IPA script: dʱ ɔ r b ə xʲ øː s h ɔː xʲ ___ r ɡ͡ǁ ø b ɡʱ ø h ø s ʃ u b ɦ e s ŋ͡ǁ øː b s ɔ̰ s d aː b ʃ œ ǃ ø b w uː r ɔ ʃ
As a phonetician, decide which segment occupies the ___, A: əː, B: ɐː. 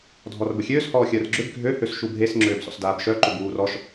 A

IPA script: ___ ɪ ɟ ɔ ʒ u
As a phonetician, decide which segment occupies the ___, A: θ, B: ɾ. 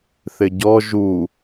A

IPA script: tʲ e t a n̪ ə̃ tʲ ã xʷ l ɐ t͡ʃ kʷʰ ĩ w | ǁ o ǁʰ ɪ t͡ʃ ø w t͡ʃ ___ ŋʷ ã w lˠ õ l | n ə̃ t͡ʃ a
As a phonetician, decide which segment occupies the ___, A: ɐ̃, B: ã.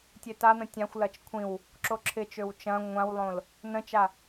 A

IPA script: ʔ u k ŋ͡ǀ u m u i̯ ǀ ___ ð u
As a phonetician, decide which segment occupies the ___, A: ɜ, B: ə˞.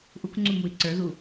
B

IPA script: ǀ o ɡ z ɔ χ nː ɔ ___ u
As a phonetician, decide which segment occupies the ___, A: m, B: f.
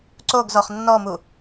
A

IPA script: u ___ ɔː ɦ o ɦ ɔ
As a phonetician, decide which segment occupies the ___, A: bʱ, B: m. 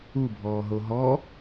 A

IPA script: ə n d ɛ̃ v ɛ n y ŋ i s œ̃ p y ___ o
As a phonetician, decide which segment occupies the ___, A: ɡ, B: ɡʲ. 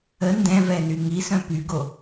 A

